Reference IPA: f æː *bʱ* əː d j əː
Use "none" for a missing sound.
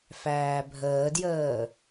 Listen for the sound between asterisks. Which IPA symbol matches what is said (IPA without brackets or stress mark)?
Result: bʱ